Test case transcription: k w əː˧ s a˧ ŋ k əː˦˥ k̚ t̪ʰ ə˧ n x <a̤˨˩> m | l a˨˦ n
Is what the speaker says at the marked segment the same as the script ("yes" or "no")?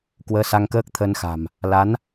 yes